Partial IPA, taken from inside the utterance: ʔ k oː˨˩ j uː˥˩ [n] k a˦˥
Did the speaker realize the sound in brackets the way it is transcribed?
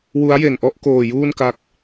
yes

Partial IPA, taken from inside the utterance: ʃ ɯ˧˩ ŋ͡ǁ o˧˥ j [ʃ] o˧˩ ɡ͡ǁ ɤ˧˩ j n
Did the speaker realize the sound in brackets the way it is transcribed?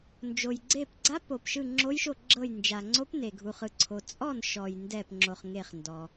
yes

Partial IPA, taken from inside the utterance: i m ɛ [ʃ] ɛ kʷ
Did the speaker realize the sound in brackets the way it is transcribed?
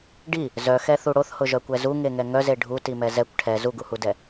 no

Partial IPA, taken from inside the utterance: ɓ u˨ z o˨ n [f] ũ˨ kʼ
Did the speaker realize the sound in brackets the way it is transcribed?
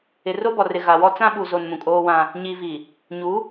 no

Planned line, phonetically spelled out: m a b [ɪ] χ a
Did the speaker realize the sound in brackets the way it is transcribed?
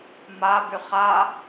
no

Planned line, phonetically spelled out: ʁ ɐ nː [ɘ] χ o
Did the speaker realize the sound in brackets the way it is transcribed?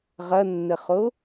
yes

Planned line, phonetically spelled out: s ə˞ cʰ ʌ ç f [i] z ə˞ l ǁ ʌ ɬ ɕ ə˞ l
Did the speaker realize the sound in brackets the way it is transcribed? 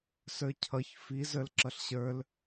yes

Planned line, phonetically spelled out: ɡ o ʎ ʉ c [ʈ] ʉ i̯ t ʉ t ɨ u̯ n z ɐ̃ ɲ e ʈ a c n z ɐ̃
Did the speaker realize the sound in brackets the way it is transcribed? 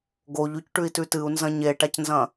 yes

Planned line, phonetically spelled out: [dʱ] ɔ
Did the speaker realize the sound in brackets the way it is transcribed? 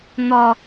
no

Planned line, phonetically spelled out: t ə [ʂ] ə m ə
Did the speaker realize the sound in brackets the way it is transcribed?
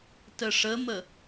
yes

